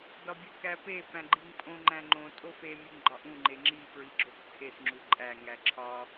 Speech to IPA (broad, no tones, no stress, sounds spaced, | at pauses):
d ɒ bʲ u k æ p e p æ̃ ɡ͡ǃ i ŋ pʼ õ ŋ͡ǃ æ̃ ŋ͡ǃ õ tʼ o f e mʲ e ŋ ɡ͡ǃ ɒ ʔ ũ ŋ͡ǃ e ŋ͡ǁ i p ɹ i ɡ͡ǁ o k tʰ e s ŋ͡ǁ u ǃʼ æ ŋ æ ǁʰ ɒ